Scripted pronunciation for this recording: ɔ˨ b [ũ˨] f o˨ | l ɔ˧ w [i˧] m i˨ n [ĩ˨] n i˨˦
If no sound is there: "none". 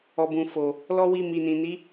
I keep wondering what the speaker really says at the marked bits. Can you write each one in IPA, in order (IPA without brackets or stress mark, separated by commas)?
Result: ũ˨, i˧, ĩ˨